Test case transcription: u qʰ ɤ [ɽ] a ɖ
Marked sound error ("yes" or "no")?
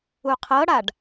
no